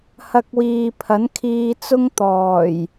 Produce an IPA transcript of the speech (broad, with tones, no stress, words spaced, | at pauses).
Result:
hɐ˧k̚wiː˨pʰɐ˨˥n kʰiː˧t͡sʊ˥ŋt̪ɔː˨˩j